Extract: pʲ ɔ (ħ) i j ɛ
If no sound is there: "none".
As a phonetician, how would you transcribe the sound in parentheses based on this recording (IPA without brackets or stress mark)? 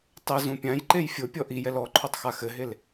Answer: ʔ